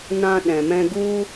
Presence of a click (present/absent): absent